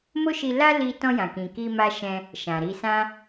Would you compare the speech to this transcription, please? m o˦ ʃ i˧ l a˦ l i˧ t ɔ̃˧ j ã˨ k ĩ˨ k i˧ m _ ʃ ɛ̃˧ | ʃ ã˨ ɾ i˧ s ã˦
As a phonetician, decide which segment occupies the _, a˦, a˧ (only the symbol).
a˧